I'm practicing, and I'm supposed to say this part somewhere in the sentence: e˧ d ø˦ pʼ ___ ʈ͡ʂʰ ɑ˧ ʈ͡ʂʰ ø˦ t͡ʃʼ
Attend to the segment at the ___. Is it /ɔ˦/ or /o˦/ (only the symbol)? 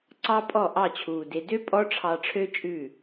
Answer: ɔ˦